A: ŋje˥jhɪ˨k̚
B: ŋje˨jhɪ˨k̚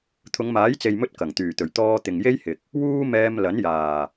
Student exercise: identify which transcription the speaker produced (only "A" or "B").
A